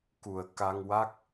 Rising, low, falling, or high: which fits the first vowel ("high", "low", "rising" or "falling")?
low